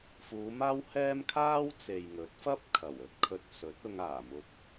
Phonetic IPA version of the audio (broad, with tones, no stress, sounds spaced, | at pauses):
f uː˨˧ m aː˥ w h ɛː˥ m kʰ aː˥ w t͡s e˨ j ŋ ɵ˨˥ t̚ f ɐ˥ p̚ kʰ ɐ˨˩ w ɵ˧ t̚ kʰ ɵ˧ t̚ s ɵ˨˥ t̚ ʊ˧ ŋ aː˨˩ m ʊ˨ k̚